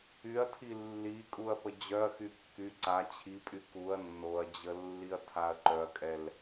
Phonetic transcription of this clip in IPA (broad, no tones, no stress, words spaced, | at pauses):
yɐ̯tʰi lːi kʼuɐ̯pəd͡ʑœɐ̯xy kːy ǀa t͡ɕʰipʼy kuɐ̯ nːoɐ̯d͡ʑə lːiɐ̯tʰaɐ̯ǃœɐ̯kʼɛl